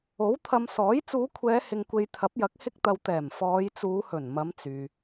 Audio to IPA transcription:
o˨˥ w t̪ʰ ɐ˧ m s ɔː˨˥ j t͡s uː˨˧ kʷʰ ɛː˨˧ h ɪ˨ ŋ kʷ e˨ j t̪ʰ ɐ˨˥ p̚ j ɐ˨˥ k̚ h ɪ˥ k̚ t̪ ɐ˧ w t̪ ɛː˨˩ m f ɔː˨˧ j t͡s uː˨˧ h ɵ˨˩ n m ɐ˨˧ m t͡s yː˨

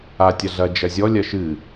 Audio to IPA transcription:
a tʲ ɐ ɮ ɐ d͡ʒ ɐ zʲ ɔ lʲ ɐ ʃ ɨ

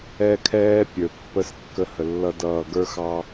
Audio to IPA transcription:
ɛ˦ kʰ ɛː˦ pʲ ə˞˨ pː ə˦ s kː ə˦ h ə˨ lː ʌ˦ d ʌː˦˨ ɡ ə˞˦ x ɑ˦

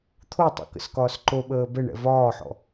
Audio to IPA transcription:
t̪ʰ o tˤ o̰ k ə̰ s k ɒː s ǃ o ɓ əː b ɛ ɳ ɛ̰ v ɒː ħ ɔ̰

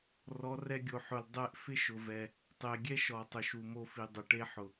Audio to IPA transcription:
r ɔ˨˦ r ɛ˧ ɡʲ o˨ ħ ʊ˨ l dˤ ɛ˧ ʔ f ɪ˦ ʃ ʊ˨ v ɛ˨ | tˤ e˨ ɡʲ ɛ˦ ʃ ɔ˨ tˤ ʊ˨ ʃ u˨ m o˧ f i˨ dˤ ʊ˨ ʈ e˧ ħ ʊ˨

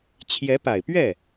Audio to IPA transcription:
t͡ɕʰ j ɛ˧˥ p a˨˩ ɪ̯ p ɥ ɛ˥˩

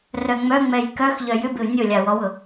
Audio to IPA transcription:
r œ ŋ͡m œ ŋ͡m ɛ j k œ x ʎ œ j ʏ b ɪ u̯ nʲ ʊ lʲ a w ɔ w ʊ

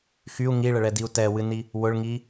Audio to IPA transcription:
x y u̯ ŋ i ɭ ə ɭ ɛ d i u̯ t ɛ w ɨ n i | w ʊ ɭ ŋ i

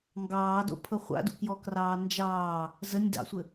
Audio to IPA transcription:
ŋ ɡ ɑː d o̰ pʰ ɤ χʷ a̰ d ṵ k j ɔ k r ɑː n d͡ʒ ɑː | z ə nʲ d ɑ̰ sʷ ɘ

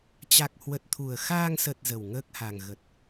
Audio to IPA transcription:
t͡ɕ a˨˩ k̚ h w ə˨˩ t̚ t̪ʰ u˨˩ ə̯ x aː˧ ŋ s ə˨˩ t̚ z ə˨˩ w ŋ əː˦˥ k̚ h a˨˩ ŋ ɣ ə˨˩ t̚

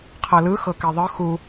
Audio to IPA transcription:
qʰ ɤ l ɯ x ɤ k e ðˤ ɯ x u

